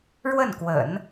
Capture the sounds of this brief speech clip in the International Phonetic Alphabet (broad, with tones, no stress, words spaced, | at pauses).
ɻwə˥˩nkwə̰˨˩˦n